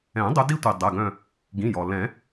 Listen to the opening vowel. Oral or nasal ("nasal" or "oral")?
nasal